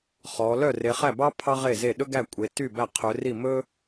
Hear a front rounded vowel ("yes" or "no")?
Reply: yes